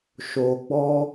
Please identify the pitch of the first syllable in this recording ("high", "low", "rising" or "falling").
low